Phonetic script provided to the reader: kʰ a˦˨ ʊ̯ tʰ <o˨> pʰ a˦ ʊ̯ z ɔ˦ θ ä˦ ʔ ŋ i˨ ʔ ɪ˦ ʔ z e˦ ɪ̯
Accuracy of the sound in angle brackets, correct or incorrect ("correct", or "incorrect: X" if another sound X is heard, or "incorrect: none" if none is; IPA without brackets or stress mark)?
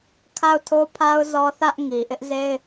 incorrect: o˦